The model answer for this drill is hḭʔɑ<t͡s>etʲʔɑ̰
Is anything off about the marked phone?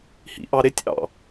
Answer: yes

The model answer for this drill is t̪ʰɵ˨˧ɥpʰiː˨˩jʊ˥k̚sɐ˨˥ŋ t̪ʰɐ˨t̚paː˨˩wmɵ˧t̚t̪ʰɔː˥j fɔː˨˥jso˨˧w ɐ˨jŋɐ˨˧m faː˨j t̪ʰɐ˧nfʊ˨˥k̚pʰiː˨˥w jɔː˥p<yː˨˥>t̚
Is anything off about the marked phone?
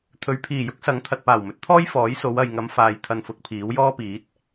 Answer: yes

